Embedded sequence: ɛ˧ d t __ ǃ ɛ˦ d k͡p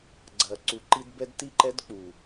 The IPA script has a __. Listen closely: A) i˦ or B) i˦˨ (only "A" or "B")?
B